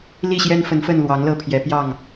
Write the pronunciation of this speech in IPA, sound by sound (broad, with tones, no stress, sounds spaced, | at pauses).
l i˥˨ ɕ j ɛ˦ n f ə˨˦ n f ə˥˨ n l w ɑ˨˦ ŋ l ɤ˥˨ pʰ j ɛ˨˦ p j ɑ˥˨ ŋ